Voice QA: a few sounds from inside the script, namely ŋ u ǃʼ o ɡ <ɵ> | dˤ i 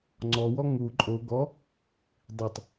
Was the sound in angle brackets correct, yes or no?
no